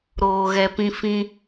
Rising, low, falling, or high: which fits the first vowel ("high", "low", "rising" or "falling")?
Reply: low